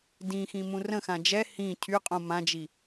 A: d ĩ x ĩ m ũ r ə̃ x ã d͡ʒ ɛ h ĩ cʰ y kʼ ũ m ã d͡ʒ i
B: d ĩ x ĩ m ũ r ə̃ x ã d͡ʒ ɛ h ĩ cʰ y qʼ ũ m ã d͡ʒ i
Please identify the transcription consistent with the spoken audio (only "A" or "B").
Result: B